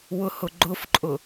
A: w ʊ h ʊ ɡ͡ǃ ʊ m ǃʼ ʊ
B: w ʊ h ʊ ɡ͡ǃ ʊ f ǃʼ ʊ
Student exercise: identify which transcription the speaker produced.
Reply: B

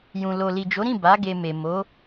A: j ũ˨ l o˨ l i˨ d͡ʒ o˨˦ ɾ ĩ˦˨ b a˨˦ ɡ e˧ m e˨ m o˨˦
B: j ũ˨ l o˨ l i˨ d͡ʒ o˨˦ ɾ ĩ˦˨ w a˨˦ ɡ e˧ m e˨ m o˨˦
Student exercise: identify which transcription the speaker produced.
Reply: A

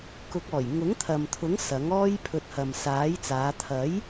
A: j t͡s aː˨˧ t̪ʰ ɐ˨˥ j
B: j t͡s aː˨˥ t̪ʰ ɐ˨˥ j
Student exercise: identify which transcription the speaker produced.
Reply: A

